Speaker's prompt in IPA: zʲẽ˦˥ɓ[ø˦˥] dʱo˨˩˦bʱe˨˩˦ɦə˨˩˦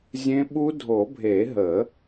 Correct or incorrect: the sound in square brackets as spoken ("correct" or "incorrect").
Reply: incorrect